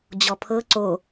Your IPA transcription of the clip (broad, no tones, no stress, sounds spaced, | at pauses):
d͡ʑ ɔ pʰ ɤ ǀ o